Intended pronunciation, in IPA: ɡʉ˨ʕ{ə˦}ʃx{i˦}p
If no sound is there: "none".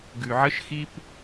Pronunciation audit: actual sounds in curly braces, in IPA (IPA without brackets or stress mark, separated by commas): ə˦, i˦